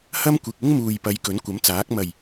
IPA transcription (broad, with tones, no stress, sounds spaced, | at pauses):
h ɐ˥ m kʷ ɪ˨ k̚ ɪ˥ ŋ m uː˨ j p ɐ˨˧ j k ɵ˨˥ n kʷ ɐ˨˥ m t͡s aː˨˥ k̚ m ɐ˨˩ j